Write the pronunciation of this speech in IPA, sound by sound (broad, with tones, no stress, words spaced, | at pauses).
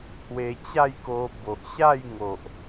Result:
t̪ʰwe˧t͡ɕa˥˧jko˧ bo˨ʔɕa˥˧jŋo˨ʔ